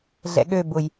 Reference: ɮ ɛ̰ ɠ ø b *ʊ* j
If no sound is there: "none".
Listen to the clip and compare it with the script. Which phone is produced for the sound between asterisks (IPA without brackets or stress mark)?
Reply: ʊ